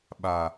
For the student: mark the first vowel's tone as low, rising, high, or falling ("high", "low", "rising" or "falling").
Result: low